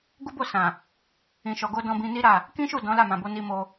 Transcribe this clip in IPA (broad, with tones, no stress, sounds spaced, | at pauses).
ɡ u˦ b o˦˨ s ã˨ | ĩ˨ ʃ ɔ˨ ɡ o˧ d ɔ̃˧ b ĩ˧ n i˦ ɾ a˦˨ | k ĩ˦ ʃ u˦˨ d ɔ̃˨˦ l a˦˨ m ã˨ b o˨˦ n i˧ m o˧